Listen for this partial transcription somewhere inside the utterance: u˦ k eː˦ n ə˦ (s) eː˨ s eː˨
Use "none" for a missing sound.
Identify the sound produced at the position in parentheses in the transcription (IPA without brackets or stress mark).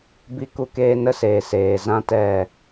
s